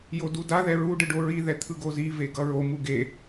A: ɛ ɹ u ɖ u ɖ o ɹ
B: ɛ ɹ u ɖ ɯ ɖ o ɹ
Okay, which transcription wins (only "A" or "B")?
B